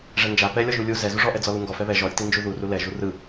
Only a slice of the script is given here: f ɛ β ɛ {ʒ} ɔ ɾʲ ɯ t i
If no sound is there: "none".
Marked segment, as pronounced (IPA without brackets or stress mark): ʒ